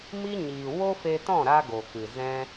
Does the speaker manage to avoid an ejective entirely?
yes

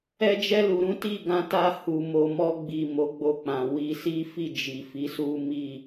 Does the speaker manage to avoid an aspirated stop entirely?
yes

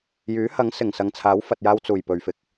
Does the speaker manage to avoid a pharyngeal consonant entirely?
yes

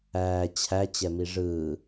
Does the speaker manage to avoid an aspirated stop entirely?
no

